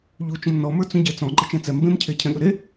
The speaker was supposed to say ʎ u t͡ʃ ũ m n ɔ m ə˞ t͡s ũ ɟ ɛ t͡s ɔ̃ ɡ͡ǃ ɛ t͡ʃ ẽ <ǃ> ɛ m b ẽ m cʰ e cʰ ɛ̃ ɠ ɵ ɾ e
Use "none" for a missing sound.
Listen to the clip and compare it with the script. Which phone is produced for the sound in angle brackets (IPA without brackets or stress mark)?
t͡s